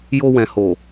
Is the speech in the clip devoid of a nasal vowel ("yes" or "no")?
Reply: no